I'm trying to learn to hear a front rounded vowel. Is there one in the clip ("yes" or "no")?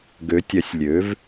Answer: yes